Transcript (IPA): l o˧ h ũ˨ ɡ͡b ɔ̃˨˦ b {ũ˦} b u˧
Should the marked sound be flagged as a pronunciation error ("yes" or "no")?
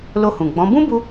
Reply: no